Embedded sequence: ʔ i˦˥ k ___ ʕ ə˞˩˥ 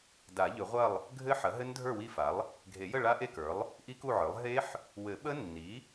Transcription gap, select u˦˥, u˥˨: u˥˨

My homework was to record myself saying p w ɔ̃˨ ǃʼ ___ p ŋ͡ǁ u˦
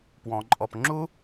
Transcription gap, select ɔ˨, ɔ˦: ɔ˨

